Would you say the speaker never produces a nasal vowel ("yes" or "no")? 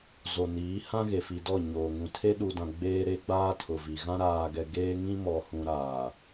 no